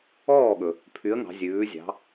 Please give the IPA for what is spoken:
ɔː˥˩ ɠ ɵ˩ | pʰ y˨˥ ə̯ ŋ ɑ̤˩˧ zʲ ʉː˩˧ zʲ ɑ̤˩˧

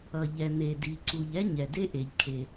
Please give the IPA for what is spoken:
ʌ˩ ʎ ɛ˩ n̪ e˩ d i˩ ǀ u˩ ʎ ɛ˥ ɲ ɛ˩ d e˥ ʔ e˩ ʎ kʰ e˩

